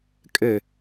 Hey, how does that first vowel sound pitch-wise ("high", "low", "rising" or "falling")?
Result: falling